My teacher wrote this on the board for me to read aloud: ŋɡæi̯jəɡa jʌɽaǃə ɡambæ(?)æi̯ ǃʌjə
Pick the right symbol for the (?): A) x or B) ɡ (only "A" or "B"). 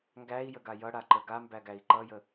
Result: B